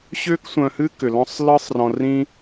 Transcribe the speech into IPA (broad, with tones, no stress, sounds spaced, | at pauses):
ɕ ʏː˦ k sʷ œ̃˧ h ɨː˦ k ʏ˧ l ɔ̃˦ sˤ l ɨː˦ sˤ r ɔ̃˧ r ĩ˦